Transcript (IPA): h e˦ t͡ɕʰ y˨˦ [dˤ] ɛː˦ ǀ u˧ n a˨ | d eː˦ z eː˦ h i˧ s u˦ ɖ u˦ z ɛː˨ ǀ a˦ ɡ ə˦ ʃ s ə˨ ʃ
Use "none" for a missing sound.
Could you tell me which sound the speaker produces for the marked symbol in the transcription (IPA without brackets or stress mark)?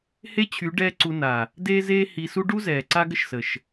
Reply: ɖ